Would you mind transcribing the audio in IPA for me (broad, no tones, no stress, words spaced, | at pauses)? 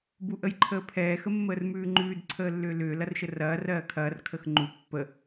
buʔəjǃʰəːpʰɛː xəmːəːrmʉːŋ͡ǃʉːd ǀʰəːlːʏːlʏː lɐrʃərɐː rɜːkʰɐːr kʰəxŋ͡ǃu pːə